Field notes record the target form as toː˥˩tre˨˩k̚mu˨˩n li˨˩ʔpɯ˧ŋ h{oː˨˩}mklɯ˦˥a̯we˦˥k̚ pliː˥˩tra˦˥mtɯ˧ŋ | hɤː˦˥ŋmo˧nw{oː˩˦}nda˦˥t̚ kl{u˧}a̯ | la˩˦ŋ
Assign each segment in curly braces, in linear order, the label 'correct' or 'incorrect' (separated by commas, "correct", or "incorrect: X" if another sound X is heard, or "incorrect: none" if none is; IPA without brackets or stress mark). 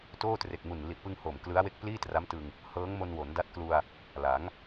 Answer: correct, incorrect: o˩˦, correct